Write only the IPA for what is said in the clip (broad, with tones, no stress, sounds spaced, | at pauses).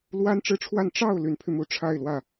l w a˥ n ʈ͡ʂ ɻ̩˥˧ ʈ͡ʂʰ w a˥˧ n ʈ͡ʂ ɑ˥˩ ʊ̯ l y˧˥ n pʰ y˧ m u˧˥ ʈ͡ʂʰ a˥˧ ɪ̯ l w ä˥˩